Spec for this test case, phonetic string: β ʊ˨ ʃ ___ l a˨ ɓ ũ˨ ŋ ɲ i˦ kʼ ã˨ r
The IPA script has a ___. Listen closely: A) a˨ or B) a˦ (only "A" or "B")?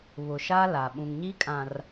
B